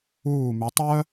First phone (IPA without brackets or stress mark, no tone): uː